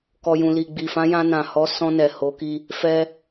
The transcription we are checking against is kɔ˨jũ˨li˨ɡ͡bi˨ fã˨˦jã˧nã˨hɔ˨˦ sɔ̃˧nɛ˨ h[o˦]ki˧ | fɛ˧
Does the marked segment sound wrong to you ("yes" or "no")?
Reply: yes